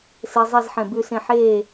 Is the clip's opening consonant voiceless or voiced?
voiceless